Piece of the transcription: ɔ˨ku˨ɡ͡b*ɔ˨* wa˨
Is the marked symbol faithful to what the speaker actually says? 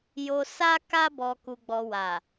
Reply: yes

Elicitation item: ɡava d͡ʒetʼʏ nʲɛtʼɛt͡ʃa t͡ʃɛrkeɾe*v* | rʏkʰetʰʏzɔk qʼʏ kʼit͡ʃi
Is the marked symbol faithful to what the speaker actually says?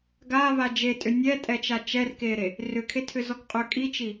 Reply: no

